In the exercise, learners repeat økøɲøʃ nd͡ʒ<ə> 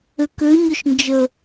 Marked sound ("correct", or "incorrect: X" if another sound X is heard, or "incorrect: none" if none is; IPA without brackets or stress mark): correct